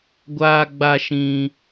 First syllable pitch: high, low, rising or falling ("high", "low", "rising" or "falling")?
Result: high